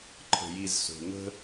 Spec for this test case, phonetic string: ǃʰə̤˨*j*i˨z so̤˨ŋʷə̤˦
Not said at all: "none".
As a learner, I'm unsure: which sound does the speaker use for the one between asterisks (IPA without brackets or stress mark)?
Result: j